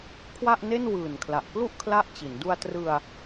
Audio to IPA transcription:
kʰ w a˥˩ ʔ n e˥˩ n w ɯː˨˩ n kʰ l a˨˩ ʔ k l u˥˩ ʔ kʰ l a˥˩ ʔ t͡ɕ i˩˦ n d u˧ a̯ t r ɯ˧ a̯

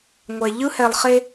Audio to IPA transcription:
ŋʷ ɛ˨ ʎ ɯ˦ h ɛ˨ lˠ χ e˦

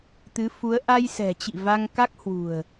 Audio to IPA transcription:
t̪ ɨ˨˦ f u˨˦ ə̯ ʔ a˧ j s ɛ̤˨˩ t͡ɕ ḭ˧˨ v a˧ ŋ k a˦˥ k̚ h w ṳ˨˩ ə̯

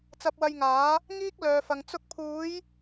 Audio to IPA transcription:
t͡s ɐ˧ p̚ w ɐ˧ j ŋ aː˨˥ | ŋ iː˥ k̚ l œː˨ f ɐ˨ ŋ t͡s ʊ˧ k̚ pʰ uː˨˧ j

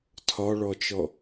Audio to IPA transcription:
tʰ ɒ ɭ ɔ t͡ʃ ɔ

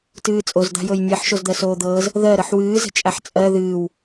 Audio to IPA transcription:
t ɨː t͡sʼ o z d̪ a̤ j ɤ j nʲ ɜ ħ ʃ o z d̪ ɜ s oː d̪ ɤː z | ð ɜ ɾ ɤ ħ w ɨː z ə̤ t͡ʃʼ a ħ t͡sʼ ɜ ð ɨː w

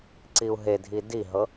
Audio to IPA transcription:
ǀ i u̯ ɦ e dʱ i d i ɦ ɤ

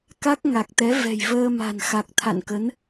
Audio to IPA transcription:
k a˦˥ k̚ ŋ a˨˩ k̚ t̪ ɛ˨˦ v ɛ̤˨˩ j v əː˧ m a̤˨˩ n x a˨˩ k̚ t̪ʰ a̰˧˨ n k ə˨˦ n

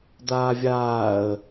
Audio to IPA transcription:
d̪ aː vʲ aː ə̯

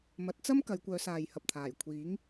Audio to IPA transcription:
m ɐ˨˥ t̚ t͡s ɐ˥ m k ɐ˨˧ j kʷ œː˨˧ s aː˨ j h ɐ˨ p̚ t̪ʰ aː˨˩ j kʷʰ iː˨˥ ŋ

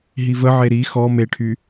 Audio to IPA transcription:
ɦ i v ə ʕ e ɾ i x ɔ m e ʈʰ y

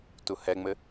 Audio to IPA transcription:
t u h ɛ ŋ͡m ɘ

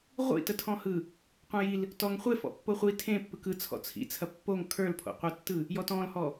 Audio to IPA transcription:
ʁʷ ḭ t ə tʰ ɔ̃ h ɯ | qʷ ẽ j i l | t ɔ ŋ χʷ e f ɔ̰ pː o χʷ i tʰ ẽ pː ɯ k ɯ t͡sʰ ɔ̰ t͡sʰ ḭ t͡sʰ ɐ pː o ŋ kʰ ə˞ l pʰ o̰ qʷ e tː ɯ | j ɔ t ɔ̃ l h ɔ

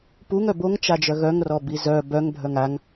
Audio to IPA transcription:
p u ŋ œ b o ŋ t͡ʃ a d͡ʒ œ ɣ œ ŋ r ɔ b i z œ b œ ŋ bʱ œ ŋ a ŋ

